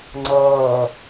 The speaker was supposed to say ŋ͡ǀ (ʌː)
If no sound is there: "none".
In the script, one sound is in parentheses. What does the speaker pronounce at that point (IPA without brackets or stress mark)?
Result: ʌː